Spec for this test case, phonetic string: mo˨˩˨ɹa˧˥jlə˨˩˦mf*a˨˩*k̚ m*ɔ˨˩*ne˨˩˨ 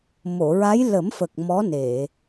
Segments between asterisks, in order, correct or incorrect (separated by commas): incorrect, incorrect